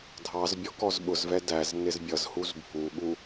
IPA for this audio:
dʱ ɑ z bʲ ɔ k ɔ z ɓ ʊ z v ɛ d æ z n ɪ z bʲ ʌ z h u z bʱ u ɠ u

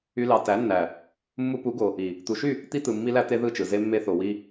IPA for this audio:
y˦ l ɑ˧ t æ˨˦ nː æ˨ | mː u˧ p u˨˦ ɡ o˨ | i˨ | t̪ u˨ ʃ y˦˨ | t̪ i˧ t̪ ɯ˨ mː i˧ l æ˧ t̪ e˧ ð ɯ˦˨ t͡ʃ ɯ˨ z e˧ mː e˧ θ o˨ w i˧

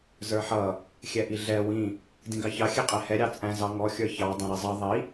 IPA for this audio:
z ə˞ ħ ʌ | xʲ ɛ ʔ i ɮ ɛ w ĩ | d ĩ ɡ ɑ ç ɑ xʲ ɛ qʼ ɛ h ɛ ɾʲ ɑ t͡sʼ æ̃ z ɑ ŋ ɔ xʲ ə˞ ç ɑ dˤ æ̃ ɾ i zˤ ʌ ðˤ i

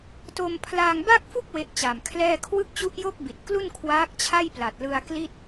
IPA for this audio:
t o˧ m pʰ l aː˧ ŋ b a˥˩ k̚ f u˥˩ k̚ w e˦˥ ʔ t͡ɕ a˨˩ m kʰ l ɛː˥˩ kʰ w ɯ˥˩ k̚ t͡ɕ u˦˥ ʔ j o˥˩ k̚ b i˨˩ t̚ k l u˥˩ n kʰ w aː˦˥ k̚ t͡ɕʰ a˥˩ j p l a˨˩ t̚ l ɯ˧ a̯ k l i˥˩ t̚

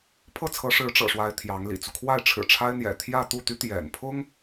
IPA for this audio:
pʰ ɤ˥˩ t͡sʰ ɤ˧˥ ʂ ɻ̩˧˥ ʈ͡ʂ ɤ̰˨˩ ʂ w a˧˥ ɪ̯ t̪ʰ j ɑ˧˥ ŋ l ḭ˨˩ t͡s u˦ kʰ w a˥˩ ɪ̯ ʈ͡ʂʰ ɻ̩˨˩ ʈ͡ʂʰ a˥ ɪ̯ n̪ j ɛ̰˨˩ t̪ʰ j ä˥˧ t̪ u˥˩ t̪ y˥ t̪ j ɛ̰˨˩ n pʰ ʊ˥ ŋ

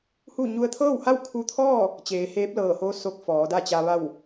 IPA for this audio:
h u˥˨ ɲ u˧ ə̯ t̪ʰ ɤː˥˨ w h a˥˨ w kʰ u˧ t̪ʰ ɔː˥˨ | t͡ɕ eː˩˧ h eː˧˥ p̚ l ɤː˧˩ h oː˧˥ s o˧˥ k̚ f ɔː˩˧ d a˥˨ t͡ɕ a˧ ʋ a˥˨ w

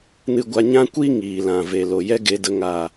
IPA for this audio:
n ɨ˧ ɡʷ a˧ ɲ ã˦ kʷ i˦ ŋ iː˨ l ã˨ v e˨ l o˨ j ɛ˦ ɡ e˧ d ə˧ ŋ a˨

